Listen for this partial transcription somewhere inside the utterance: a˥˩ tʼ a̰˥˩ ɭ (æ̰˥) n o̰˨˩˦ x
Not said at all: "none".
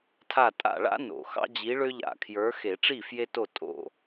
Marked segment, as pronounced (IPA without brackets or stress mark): a̰˥